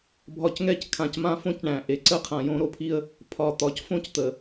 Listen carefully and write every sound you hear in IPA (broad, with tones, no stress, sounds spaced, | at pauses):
bʱ ɒ˨ c ŋ ɛ˦ c kʰ ã˨ c m ã˦ f õ˦ c ɳ æ̃˨ ʔ e˨ ǀ ə˦ qʰ ã˨ j õ˦ ɾ o˦ pʰ i˦ ə̯ | pʰ ɒ˨ t̪ ɒ˨ c f õ˦ c t̪ ə˨